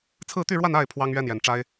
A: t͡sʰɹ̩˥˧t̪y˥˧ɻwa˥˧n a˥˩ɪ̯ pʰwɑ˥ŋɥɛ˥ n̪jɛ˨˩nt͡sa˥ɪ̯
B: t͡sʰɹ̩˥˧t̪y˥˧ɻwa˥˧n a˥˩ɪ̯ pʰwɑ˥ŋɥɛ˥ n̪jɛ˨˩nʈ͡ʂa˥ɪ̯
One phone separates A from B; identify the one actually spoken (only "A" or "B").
B